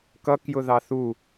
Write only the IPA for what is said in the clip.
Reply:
k ʌ k j ʊ ð ɑ θ u

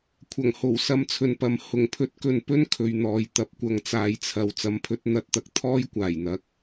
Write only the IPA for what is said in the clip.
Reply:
kʷʰ ɐ˨˩ ŋ h o˨˩ w s ɐ˧ m t͡sʰ ɵ˨ n p ɐ˨ m h ʊ˨˩ ŋ pʰ ɵ˧ t̚ k ɵ˨ n p ɵ˥ n kʰ ɵ˨˧ ɥ n̪ ɔː˨˧ j t̪ ɐ˨˥ p̚ kʷ ɐ˨˧ ŋ t͡s aː˨ j t͡sʰ ɐ˨ w t͡s ɐ˨˥ m pʰ ɵ˨˥ t̚ n̪ ɐ˨˥ t̚ t̪ ɐ˨ k̚ t̪ʰ ɔː˥ j kʷ aː˨˩ j n̪ ɐ˧ k̚

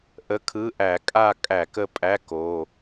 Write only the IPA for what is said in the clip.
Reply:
ʔ ə˧˥˧ kʰ ɯ˧˥˧ ʔ æ˧˩˧ kʼ a˦˨ kʼ æ˧˩˧ k ə˦˨ pʼ æ˧˥˧ k o˩˧˩

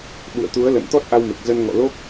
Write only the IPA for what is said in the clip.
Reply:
ɓ ṵ˧˨ ə̯ t̪ u˨˦ ə̯ l ə̰˧˨ n t̪ ɔ˦˥ t̚ ʔ a˧ w m e˨˩ k̚ z ə˧ n ŋ ɔ̰˧˨ l o˦˥ k̚

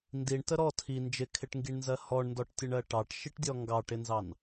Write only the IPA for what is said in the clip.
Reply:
n d i ɳ t ə ɾ ɔ tʰ i n d͡ʒ ɪ kʰ ɪ ʈ ŋ ɡ i ɳ n z ɜ h ɔ ɳ n d ɔ ʈ tʲ ə ɳ ɜ ʈ ɑ ʈ ʃ i ʈ dʲ ɔ ŋ ɡ ɑ ʈ ɪ n z ɑ n

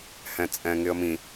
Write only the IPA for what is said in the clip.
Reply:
h ɛ̃ t͡sʼ ɛ̃ ŋ ɪ ə̯ m ĩ

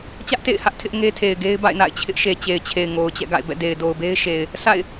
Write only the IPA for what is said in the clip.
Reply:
t͡ɕ ä˦ ʔ t ḛ˦˨ ɪ̯ h ä˦ ʔ tʰ ɪ˦ ʔ ŋ e˦ tʰ e˨ ɪ̯ ɡ e˦ ɪ̯ b a̰˦˨ ɪ̯ n a̰˦˨ ɪ̯ t͡ɕʰ ɪ˦ ʔ ʃ e˨ t͡ɕ e˨ ɪ̯ t͡ɕʰ e˨ ɪ̯ ŋ o˨ ʊ̯ t͡ɕ ɛ̰˦˨ ɡ a̰˦˨ ɪ̯ b ɛ̰˦˨ d e˨ ɪ̯ d o˨ ʊ̯ b e˦ ɪ̯ ʃ e˨ ɪ̯ | s a̰˦˨ ɪ̯

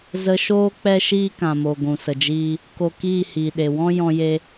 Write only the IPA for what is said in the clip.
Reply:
z ə˧ ʃ oː˦ k͡p ɛ˦ ʃ iː˦ k ã˨ m o˨ ɡʷ ũ˨ s ə˨ d͡ʒ iː˧ | k o˧ k iː˦˨ h iː˨ ɗ e˨ w ɔ̃˦ j ɔ̃˧ j e˧

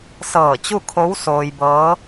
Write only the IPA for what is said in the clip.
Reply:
s ɤː˧˩ t͡ɕ u˥˨ kʰ o˧˥ w s oː˧ j b ɤː˧˥

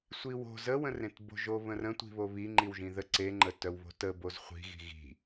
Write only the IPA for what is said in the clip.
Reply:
sʷ i w o̤ z ə w ə̃ r ẽ t b o̤ ʒ o β ə̃ r ə̃ tʷ i̤ β o β i ŋ͡ǃ i w ʒ ĩ ð ə ǀ e ŋ͡ǃ ə t œ w β o̤ t ə b o z χʷ i̤ ɣ i̤ ɣ i̤

